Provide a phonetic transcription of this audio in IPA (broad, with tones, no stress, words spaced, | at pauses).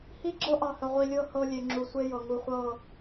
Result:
hi˦ɡ͡ǁɤ˦ʔɑ˨hə˨ ʁʷi˨lʲɤ˦˨ hɤ˨ lʲe˨ŋ͡ǁu˨sʷe˦jɤ˨ ŋu˨χʷɤ˦˨